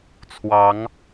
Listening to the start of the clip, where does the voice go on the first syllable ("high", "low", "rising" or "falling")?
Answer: rising